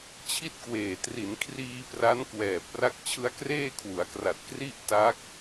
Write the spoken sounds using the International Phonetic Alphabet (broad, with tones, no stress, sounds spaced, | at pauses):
t͡ɕʰ i˥˩ t̚ k w eː˨˩ t r i˩˦ n kʰ r iː˧ p r a˦˥ n k w ɛː˨˩ p̚ r a˦˥ k̚ t͡ɕʰ ɯ˦˥ a̯ k r eː˥˩ kʰ w u˩˦ a̯ k r a˨˩ t̚ k r i˥˩ ʔ t a˦˥ k̚